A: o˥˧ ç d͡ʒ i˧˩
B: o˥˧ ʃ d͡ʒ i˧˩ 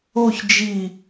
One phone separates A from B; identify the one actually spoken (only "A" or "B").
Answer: A